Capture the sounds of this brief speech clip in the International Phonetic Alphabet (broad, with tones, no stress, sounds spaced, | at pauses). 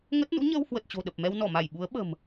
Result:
ŋ ə˦˥ t̚ n ṵ˧˥ ɲ əː˧ w h w ə˨˩ t̚ t͡ɕ o̤˨˩ ɗ ə˨˩ p̚ m ɛ˧ w n ɔ˧˩ m a˧˩ j ɓ u˨˦ ə̯ ɓ ə̤˨˩ m